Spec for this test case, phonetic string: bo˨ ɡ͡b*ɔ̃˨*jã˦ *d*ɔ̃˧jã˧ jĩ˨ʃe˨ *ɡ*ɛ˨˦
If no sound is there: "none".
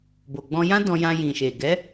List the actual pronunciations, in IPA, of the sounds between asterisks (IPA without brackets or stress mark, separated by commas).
ɔ̃˧, d, ɡ